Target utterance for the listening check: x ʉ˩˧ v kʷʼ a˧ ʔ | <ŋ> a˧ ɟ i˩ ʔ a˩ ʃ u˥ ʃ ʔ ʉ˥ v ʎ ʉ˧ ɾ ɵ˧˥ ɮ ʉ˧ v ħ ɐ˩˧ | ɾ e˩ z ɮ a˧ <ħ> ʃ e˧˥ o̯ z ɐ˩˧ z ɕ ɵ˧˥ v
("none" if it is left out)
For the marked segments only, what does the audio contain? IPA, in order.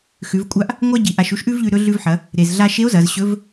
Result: ŋʷ, none

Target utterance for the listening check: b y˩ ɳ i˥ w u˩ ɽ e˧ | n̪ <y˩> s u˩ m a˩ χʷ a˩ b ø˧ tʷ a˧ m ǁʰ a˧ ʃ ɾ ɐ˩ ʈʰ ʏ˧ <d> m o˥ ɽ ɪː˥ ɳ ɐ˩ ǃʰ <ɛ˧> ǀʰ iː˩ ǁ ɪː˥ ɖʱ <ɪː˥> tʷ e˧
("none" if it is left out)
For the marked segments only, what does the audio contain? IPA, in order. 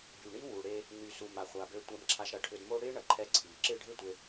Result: y˩, d, ɛ˧, ɪː˥

